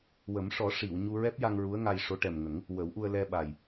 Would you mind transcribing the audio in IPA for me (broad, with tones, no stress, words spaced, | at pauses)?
wə˨˩˦mʂɔ˨˩˦ ʂi˨˩˨w ɲu˧ɹɛ˦˥p̚ja˧ŋ ɹu˧˥ə̯ŋa˧jʂo˧˥ ʈɛ˨˩mŋə˨˩˦ŋ | wə˨˩˦wʔu˧ə̯ lɛ˧ɓa˨˩j